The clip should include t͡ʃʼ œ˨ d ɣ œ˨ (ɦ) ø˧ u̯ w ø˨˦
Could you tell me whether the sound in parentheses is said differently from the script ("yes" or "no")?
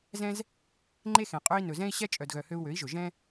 yes